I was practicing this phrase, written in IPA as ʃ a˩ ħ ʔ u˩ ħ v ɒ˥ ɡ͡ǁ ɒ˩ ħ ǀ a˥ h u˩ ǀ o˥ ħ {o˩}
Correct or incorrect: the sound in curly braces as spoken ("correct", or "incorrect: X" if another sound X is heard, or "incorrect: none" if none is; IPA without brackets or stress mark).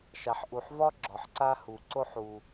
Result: incorrect: u˩